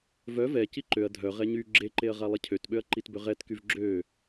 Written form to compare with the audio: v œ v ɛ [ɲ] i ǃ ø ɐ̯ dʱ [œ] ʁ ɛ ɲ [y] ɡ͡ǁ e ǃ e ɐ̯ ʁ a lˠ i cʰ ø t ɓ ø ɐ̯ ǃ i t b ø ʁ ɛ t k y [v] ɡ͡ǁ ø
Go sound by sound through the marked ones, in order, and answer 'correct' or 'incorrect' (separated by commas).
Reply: incorrect, correct, correct, correct